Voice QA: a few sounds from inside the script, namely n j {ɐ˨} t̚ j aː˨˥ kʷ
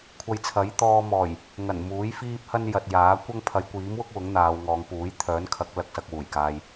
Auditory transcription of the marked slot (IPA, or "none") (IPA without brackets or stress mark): ɐ˨